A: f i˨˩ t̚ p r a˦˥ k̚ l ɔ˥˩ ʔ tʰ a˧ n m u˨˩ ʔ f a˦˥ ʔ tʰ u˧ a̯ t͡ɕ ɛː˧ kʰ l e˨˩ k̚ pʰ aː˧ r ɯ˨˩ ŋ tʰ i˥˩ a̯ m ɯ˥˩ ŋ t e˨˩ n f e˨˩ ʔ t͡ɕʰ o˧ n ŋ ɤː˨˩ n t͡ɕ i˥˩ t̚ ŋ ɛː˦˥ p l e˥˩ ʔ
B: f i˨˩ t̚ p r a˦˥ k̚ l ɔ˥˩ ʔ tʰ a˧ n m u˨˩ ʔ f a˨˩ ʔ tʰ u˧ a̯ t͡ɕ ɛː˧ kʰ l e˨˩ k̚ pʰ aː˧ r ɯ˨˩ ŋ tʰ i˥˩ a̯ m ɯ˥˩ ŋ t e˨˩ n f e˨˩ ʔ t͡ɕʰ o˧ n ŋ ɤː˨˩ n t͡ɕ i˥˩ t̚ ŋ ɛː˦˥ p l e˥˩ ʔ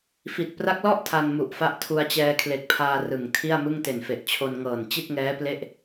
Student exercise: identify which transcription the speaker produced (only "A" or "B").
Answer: A